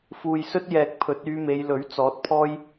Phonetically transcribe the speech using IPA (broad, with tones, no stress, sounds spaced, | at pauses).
f uː˨ j s ɵ˥ t̚ j ɛː˨ k̚ pʰ ɵ˨˥ t̚ yː˨˧ m e˨˧ j l ɵ˨˥ ɥ t͡s ɔː˨˥ t̚ pʰ ɔː˥ j